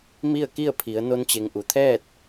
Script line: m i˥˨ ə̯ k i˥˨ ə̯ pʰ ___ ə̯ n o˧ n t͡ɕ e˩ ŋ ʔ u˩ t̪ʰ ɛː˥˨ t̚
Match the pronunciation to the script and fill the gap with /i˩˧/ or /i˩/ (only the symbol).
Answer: i˩˧